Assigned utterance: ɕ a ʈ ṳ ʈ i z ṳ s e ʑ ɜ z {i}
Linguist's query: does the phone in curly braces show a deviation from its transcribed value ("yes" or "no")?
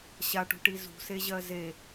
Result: yes